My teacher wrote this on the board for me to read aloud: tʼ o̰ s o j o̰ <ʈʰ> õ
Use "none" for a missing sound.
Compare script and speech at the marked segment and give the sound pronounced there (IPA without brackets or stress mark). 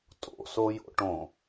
ʈ